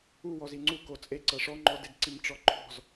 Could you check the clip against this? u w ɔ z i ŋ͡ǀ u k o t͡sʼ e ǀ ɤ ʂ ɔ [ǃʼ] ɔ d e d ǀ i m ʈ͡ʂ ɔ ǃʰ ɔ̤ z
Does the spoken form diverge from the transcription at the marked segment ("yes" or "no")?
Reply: yes